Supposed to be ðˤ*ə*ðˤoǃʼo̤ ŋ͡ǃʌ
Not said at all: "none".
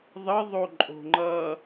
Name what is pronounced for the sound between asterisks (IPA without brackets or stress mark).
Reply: ə